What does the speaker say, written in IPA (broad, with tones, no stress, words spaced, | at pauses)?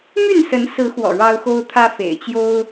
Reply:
my˥˨nsə˨˦nsɹ̩˨˦xwɔ̰˨˩ ɻɑ˦ʊ̯xo˦ʊ̯t̪ʰä˦ fḛ˨˩ɪ̯t͡ɕjo˦ʊ̯